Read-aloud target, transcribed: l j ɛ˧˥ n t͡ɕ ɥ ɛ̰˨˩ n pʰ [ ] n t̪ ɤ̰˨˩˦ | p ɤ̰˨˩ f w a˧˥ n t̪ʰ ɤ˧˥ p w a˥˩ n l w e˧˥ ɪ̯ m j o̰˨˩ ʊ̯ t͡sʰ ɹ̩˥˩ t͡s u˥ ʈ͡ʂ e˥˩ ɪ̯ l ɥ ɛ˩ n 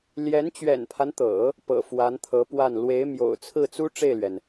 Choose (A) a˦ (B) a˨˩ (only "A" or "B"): A